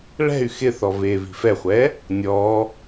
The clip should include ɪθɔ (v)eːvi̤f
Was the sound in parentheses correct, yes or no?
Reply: yes